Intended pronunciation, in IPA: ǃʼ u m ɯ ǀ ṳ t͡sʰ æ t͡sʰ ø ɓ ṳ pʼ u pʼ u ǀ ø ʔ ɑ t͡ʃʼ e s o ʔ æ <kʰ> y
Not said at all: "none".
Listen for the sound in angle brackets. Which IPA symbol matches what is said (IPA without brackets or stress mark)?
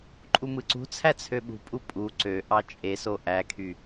kʰ